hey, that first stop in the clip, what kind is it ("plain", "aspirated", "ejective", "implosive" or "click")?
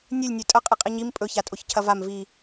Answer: ejective